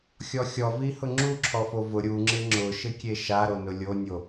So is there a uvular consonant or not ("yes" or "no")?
no